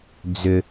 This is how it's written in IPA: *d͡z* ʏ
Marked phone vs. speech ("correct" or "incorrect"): correct